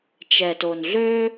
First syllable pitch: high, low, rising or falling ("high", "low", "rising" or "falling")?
low